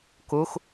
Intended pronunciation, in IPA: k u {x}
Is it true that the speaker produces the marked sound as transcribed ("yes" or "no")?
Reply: yes